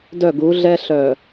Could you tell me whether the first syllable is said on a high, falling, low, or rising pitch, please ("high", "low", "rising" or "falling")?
falling